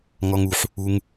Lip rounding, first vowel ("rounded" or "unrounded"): rounded